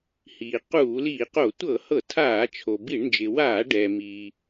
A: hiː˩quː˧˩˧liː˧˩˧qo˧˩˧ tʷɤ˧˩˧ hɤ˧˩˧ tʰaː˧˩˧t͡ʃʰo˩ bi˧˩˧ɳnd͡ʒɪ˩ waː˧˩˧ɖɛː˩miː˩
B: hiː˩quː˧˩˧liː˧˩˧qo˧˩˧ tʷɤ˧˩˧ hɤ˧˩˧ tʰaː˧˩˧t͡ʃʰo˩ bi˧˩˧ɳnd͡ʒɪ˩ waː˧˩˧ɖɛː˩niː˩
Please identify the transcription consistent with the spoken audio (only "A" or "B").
A